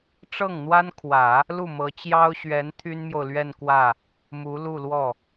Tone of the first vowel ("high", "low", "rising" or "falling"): falling